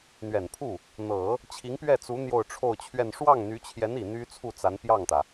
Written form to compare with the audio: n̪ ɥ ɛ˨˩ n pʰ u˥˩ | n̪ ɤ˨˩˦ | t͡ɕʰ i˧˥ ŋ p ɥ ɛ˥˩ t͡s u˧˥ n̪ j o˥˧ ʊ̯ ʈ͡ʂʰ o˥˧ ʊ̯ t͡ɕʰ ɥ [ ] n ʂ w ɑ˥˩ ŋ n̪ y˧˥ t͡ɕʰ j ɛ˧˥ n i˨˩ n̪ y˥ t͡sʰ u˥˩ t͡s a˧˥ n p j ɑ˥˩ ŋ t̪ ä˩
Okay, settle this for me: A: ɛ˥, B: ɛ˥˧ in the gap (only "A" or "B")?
B